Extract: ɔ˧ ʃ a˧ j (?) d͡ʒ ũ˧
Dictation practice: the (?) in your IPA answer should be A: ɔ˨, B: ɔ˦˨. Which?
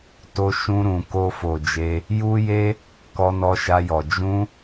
A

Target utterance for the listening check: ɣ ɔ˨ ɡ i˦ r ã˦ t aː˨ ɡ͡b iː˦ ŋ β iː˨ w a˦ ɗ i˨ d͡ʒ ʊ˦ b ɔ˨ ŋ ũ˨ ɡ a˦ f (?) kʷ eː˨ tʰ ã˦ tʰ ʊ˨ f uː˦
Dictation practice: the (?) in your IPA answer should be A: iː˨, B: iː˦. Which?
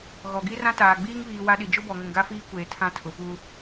B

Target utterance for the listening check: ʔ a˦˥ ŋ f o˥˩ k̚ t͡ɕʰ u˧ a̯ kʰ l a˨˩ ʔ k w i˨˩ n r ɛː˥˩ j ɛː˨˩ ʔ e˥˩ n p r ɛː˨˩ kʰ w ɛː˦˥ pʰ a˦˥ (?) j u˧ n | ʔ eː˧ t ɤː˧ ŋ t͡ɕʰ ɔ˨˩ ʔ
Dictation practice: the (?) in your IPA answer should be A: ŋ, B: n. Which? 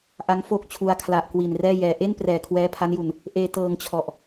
B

